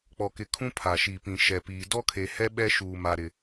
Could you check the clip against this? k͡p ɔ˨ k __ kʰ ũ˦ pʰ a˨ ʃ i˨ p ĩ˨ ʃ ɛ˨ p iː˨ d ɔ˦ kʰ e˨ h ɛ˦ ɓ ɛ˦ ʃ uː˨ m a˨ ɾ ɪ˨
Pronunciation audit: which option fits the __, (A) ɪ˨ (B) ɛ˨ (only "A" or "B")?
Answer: A